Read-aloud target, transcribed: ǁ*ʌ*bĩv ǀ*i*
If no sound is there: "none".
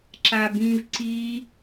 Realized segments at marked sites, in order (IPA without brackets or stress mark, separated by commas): a, i